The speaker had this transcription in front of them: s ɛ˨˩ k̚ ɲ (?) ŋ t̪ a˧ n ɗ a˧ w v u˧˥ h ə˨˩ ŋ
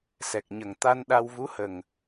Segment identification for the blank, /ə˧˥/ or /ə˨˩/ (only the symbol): ə˨˩